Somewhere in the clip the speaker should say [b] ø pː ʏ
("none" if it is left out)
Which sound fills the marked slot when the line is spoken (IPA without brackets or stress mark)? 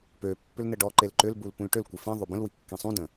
p